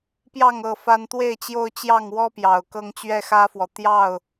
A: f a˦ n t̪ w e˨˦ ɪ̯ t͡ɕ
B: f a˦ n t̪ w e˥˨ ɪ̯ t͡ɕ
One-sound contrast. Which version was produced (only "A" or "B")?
B